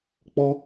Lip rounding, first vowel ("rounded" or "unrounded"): rounded